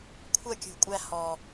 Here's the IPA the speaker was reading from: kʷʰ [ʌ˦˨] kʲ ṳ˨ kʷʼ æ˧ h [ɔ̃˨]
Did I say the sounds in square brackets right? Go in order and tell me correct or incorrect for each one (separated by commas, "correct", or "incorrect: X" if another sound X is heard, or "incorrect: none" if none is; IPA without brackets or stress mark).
correct, incorrect: ɔ˨